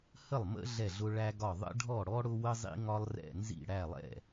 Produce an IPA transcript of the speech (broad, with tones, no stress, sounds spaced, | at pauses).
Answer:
h ə˥˩ lˠ m ə̰˥ ɮ ɛ˥˩ ɮ ʊ˥ ɭ æ˥ ɡ ɒ˥˩ ðˤ ə̰˥ ɖʱ ɔ˥˩ ɽ ɔ˥ ɽ ʊ˥ w ə˥ zˤ ḭ˥ ŋ ɒ˥ lˠ r ɛ̰˥˩ n z ḭ˥˩ ɽ æ˥˩ lˠ ɛ̰˥˩